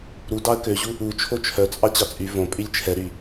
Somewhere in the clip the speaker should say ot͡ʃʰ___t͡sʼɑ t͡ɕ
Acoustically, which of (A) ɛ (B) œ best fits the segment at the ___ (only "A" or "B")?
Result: B